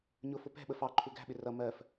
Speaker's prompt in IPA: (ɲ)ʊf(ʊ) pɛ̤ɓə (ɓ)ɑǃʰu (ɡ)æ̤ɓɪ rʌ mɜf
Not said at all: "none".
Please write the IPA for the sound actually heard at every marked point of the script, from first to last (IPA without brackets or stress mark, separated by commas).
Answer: ɲ, ʊ, f, ɡ